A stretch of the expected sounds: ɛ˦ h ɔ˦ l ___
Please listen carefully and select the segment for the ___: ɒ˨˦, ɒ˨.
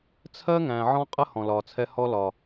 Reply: ɒ˨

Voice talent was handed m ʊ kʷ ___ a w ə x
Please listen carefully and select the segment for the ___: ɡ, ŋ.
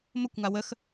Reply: ŋ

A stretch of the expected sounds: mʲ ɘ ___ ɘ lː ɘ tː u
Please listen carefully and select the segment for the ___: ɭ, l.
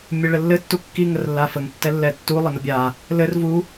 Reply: ɭ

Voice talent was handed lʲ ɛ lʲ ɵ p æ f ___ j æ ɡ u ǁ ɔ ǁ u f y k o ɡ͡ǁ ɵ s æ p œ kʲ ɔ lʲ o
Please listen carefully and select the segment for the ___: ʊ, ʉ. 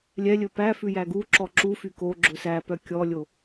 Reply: ʉ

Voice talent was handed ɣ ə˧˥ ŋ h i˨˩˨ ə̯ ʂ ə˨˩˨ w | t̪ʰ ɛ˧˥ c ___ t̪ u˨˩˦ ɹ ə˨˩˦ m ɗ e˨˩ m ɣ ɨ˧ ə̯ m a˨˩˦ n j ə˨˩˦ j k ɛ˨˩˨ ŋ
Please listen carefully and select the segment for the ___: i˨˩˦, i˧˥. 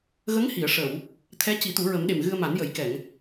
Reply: i˨˩˦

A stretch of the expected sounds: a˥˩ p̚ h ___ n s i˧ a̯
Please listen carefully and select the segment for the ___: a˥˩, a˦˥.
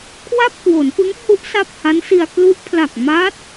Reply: a˦˥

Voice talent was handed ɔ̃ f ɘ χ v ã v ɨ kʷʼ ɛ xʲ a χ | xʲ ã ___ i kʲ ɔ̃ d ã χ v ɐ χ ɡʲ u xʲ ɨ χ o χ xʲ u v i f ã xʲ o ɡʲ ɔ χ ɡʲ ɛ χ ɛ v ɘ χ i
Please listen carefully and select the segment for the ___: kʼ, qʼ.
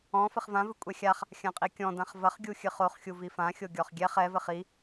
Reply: qʼ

